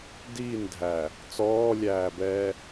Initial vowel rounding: unrounded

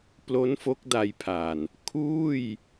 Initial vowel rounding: rounded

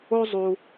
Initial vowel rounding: rounded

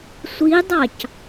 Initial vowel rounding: unrounded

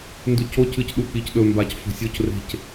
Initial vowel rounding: rounded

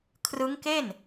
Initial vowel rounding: unrounded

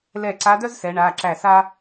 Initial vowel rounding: unrounded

